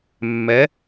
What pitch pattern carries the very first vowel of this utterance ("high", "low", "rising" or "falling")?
rising